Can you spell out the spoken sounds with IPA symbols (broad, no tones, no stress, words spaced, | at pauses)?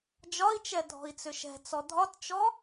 d͡ʒɒi̯t͡ʃɛ dʱɔ̤i̯t͡sʏʃɛ̤t͡sɔ dʱɒtt͡ʃɔ